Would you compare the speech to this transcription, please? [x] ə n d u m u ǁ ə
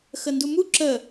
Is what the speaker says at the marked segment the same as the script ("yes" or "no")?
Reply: yes